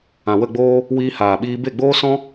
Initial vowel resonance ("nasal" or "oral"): nasal